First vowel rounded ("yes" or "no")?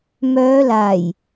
yes